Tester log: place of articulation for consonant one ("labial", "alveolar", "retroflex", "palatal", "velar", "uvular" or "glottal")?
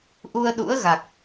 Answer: glottal